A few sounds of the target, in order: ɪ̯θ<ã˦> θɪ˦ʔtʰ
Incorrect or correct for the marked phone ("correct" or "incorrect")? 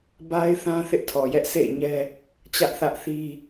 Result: correct